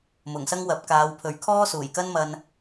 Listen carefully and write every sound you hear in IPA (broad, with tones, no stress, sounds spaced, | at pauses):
m ʊ˨˩ ŋ s ɐ˥ ŋ w ɐ˨˥ p̚ k aː˨˧ w pʰ ɵ˨˧ ɥ kʰ ɔː˥ s uː˨˩ j k ɐ˥ n m ɐ˧ n